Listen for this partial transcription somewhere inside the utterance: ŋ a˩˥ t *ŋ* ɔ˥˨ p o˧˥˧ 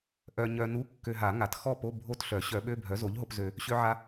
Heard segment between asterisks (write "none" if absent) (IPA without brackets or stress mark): x